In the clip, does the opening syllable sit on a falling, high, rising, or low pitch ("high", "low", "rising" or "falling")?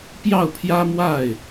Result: falling